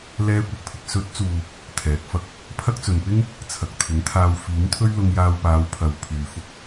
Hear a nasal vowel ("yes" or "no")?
no